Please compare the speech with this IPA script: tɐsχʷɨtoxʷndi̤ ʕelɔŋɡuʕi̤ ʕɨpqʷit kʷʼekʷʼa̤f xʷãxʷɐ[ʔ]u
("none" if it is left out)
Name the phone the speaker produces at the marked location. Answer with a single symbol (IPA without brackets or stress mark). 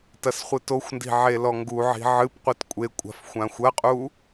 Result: qʼ